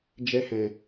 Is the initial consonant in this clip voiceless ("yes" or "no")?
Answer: no